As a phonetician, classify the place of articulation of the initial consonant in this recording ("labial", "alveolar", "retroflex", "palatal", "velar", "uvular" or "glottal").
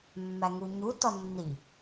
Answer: labial